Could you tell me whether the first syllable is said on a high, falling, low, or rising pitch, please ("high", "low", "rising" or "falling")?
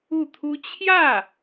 falling